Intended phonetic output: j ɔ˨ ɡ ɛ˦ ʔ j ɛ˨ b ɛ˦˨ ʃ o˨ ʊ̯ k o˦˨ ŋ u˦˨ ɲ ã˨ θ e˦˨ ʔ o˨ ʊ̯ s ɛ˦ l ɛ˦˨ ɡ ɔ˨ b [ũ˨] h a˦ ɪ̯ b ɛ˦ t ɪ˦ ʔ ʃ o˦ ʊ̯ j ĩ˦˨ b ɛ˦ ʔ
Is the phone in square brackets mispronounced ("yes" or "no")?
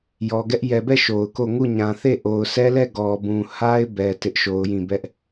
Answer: no